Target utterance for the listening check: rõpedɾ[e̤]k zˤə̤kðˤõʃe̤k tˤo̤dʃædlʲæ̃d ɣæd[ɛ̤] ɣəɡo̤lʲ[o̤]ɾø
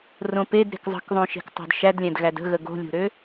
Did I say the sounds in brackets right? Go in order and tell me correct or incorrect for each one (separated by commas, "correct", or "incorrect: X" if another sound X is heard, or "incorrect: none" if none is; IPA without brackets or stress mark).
correct, incorrect: ə̤, correct